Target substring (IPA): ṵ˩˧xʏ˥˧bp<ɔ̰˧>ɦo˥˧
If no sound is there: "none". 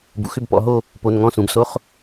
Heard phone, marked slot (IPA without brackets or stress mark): ɔ̰˧